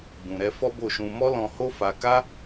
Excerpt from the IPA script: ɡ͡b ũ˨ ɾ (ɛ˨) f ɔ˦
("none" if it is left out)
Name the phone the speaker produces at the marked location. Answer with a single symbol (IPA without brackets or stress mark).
ɛ˧